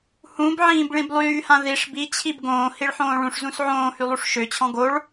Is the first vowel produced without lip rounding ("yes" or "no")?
no